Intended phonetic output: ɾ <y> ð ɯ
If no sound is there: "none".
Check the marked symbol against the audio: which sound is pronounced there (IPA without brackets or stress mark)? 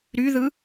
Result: y